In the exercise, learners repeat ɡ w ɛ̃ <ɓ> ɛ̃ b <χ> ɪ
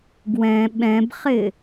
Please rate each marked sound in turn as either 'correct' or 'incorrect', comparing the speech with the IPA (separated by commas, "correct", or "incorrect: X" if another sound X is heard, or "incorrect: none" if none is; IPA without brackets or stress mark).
correct, correct